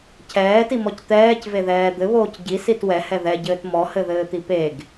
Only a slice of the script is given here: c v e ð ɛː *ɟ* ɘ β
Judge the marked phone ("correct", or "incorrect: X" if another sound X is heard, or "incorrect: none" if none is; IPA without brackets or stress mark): incorrect: d̪